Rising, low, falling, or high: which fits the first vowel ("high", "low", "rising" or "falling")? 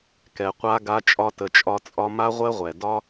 low